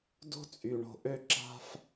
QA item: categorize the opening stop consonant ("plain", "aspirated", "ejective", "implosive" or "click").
plain